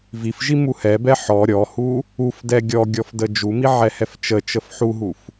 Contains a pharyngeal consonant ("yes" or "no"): yes